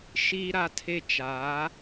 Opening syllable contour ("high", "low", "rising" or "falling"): high